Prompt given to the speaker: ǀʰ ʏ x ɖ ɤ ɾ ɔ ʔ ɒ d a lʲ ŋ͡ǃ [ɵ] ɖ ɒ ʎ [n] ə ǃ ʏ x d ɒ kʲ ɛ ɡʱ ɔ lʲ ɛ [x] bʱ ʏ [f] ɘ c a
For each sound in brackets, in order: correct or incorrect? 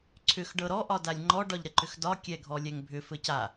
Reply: incorrect, incorrect, incorrect, correct

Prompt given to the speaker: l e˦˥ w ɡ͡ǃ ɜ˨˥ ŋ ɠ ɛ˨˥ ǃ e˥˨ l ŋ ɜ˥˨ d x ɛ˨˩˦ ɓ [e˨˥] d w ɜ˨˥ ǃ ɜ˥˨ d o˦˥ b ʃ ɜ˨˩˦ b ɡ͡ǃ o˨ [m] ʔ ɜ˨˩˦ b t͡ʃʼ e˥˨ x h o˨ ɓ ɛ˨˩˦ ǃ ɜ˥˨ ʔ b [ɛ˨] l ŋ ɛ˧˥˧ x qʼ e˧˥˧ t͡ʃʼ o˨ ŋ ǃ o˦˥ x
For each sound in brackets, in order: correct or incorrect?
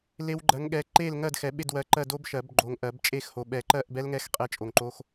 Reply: incorrect, incorrect, incorrect

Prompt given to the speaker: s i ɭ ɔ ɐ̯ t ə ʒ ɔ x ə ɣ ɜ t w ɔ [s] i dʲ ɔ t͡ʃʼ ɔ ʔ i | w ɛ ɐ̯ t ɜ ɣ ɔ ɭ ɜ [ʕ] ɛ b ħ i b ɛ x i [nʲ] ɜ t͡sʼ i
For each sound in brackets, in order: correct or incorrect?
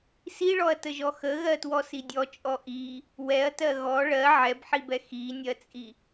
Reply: correct, correct, correct

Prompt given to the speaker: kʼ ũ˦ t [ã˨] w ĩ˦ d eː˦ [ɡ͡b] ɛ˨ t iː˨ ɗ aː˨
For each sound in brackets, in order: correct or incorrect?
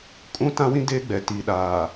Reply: incorrect, correct

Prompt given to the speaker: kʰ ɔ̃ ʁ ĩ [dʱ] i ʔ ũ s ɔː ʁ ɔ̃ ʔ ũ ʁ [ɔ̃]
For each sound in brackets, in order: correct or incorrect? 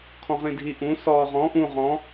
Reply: correct, correct

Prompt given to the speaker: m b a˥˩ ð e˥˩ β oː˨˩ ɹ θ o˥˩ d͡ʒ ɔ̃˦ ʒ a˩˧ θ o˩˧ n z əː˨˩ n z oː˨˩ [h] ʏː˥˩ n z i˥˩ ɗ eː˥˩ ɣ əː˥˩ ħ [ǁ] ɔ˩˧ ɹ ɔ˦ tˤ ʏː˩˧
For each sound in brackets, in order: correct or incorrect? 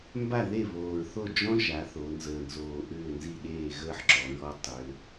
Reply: incorrect, correct

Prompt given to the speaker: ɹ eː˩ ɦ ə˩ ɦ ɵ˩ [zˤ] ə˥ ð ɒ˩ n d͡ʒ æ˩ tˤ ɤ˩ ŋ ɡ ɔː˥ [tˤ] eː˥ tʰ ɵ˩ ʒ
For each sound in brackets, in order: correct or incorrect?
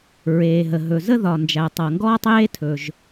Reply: incorrect, correct

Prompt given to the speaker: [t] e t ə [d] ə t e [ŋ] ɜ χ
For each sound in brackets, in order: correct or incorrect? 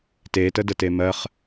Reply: correct, correct, incorrect

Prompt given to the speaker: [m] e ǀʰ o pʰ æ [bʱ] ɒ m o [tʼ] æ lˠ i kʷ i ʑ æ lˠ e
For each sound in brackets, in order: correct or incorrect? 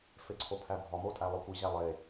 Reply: incorrect, correct, correct

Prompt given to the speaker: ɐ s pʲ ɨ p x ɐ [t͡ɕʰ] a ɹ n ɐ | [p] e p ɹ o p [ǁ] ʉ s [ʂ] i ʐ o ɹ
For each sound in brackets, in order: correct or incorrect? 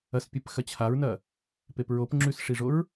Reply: correct, correct, incorrect, correct

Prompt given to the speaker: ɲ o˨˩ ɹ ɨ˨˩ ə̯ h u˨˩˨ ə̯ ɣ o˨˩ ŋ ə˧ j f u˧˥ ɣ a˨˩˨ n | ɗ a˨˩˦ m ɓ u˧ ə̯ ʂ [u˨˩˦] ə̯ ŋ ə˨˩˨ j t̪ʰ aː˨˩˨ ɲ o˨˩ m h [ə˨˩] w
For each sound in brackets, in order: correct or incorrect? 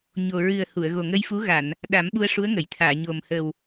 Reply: incorrect, correct

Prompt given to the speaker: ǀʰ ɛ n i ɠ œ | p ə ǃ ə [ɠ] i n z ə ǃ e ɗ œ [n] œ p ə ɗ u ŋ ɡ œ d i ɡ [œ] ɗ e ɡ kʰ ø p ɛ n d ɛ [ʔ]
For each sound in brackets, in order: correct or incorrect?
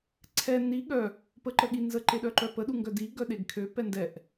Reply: correct, incorrect, correct, correct

